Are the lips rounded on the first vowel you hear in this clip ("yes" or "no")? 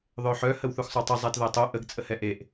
yes